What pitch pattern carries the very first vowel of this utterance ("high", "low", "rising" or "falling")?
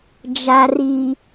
low